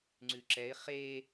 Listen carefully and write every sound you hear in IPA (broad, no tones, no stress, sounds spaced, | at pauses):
ŋ͡ǀ ʉ ǁ ɛ ɪ̯ χ e